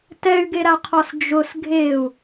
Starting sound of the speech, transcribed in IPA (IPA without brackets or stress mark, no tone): t